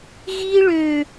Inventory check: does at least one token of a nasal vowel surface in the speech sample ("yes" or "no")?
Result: no